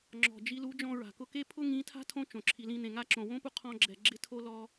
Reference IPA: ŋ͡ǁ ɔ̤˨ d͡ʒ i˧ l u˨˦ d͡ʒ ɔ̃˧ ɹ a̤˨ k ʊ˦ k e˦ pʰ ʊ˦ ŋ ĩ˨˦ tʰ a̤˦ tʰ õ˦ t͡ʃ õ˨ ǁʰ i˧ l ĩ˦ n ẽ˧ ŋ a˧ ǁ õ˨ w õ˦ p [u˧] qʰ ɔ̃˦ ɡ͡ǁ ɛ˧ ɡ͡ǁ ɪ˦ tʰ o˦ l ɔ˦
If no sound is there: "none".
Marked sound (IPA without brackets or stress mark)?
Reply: u˧